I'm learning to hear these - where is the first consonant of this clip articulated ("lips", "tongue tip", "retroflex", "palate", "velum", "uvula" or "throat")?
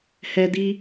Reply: throat